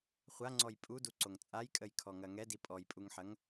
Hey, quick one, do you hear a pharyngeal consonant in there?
yes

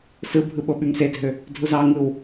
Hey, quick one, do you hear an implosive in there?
yes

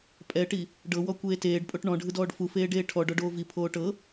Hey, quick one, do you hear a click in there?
no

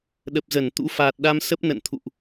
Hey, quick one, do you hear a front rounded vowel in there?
no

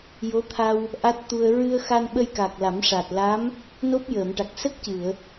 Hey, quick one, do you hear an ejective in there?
no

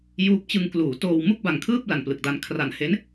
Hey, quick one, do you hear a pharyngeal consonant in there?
no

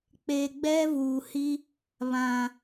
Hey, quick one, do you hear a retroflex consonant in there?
no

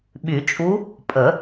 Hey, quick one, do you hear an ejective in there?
yes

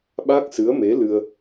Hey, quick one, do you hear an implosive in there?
yes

